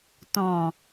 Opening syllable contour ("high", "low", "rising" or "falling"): low